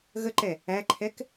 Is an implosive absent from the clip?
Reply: yes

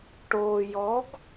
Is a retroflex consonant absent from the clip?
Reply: no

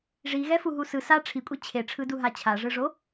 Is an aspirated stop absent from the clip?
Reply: no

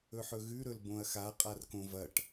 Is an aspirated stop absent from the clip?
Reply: yes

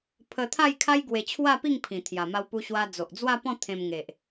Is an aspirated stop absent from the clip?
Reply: no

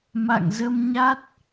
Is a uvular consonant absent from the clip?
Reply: yes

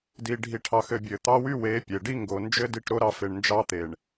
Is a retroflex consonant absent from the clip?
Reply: no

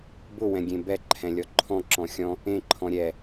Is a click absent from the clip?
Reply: no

